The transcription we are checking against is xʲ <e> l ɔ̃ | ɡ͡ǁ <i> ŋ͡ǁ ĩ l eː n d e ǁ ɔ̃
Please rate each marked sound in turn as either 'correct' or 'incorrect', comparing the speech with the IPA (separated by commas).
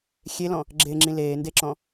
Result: correct, incorrect